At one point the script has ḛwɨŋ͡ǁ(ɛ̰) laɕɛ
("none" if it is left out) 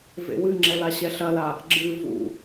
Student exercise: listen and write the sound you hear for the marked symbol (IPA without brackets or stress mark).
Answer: ɛ